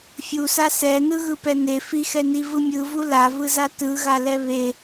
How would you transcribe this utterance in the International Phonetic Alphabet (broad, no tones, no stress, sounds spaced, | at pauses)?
fʲ u s a s ɛ n ɯ ɣ ɯ p ɛ n e f i x ɛ n i v ɯ mʲ ɯ v u l a v ɯ z a t ɯ ɣ a l ɛ β e